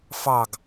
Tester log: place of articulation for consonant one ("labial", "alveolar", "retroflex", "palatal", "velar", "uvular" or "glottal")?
labial